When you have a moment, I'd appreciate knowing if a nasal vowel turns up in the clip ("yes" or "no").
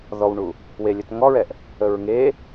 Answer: no